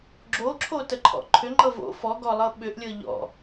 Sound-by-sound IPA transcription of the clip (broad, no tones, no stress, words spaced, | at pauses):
ɡ͡ǁoǁʰo təǃʰɔ̰ǃʰʏŋ͡ǃɤ vo̰ fɔɡɔ lˠɤɓʏʔlʲɤ ʎɔ̰